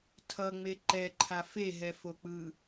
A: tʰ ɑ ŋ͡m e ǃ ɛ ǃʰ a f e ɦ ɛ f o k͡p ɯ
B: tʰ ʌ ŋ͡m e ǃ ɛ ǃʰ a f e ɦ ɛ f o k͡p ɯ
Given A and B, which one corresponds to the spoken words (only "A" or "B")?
B